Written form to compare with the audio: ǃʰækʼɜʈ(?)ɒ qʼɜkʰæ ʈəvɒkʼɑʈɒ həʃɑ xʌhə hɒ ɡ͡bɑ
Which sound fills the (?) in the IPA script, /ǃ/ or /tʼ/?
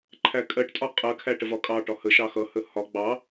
tʼ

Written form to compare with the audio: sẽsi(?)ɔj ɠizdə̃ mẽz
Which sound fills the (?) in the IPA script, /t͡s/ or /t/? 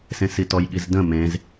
t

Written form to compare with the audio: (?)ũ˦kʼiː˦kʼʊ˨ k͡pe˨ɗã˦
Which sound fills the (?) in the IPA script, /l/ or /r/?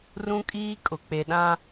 r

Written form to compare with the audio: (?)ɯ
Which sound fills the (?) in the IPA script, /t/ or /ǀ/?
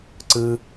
ǀ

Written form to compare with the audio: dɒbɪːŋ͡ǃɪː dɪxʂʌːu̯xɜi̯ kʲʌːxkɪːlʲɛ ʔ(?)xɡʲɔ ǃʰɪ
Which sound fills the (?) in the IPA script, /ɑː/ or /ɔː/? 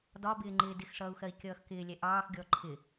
ɑː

